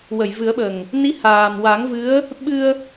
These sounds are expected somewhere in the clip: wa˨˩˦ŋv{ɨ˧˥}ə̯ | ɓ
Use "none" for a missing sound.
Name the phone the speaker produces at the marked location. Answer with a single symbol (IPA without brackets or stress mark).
ɨ˧˥